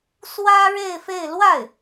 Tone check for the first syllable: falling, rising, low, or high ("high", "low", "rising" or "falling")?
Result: high